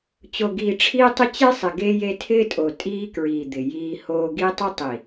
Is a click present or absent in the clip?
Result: absent